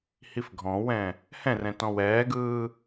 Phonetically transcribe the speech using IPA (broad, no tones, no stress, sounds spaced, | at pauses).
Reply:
h i f ɡʱ ɔ̃ w ɛ̃ | h ɛ̃ r ɛ̃ t ɔ̃ w ɛː ɡ ɯː